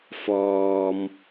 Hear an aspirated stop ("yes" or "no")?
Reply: no